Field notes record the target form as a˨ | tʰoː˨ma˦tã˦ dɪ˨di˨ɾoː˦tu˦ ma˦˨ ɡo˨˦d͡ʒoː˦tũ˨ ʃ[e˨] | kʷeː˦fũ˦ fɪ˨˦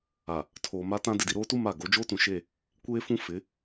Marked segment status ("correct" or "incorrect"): incorrect